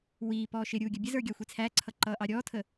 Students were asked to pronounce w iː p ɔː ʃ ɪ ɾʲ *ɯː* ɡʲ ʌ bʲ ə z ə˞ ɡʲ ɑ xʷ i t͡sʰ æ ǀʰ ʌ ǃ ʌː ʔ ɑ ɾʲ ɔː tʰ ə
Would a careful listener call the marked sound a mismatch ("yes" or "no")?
yes